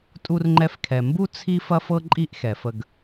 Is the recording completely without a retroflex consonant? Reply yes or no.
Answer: yes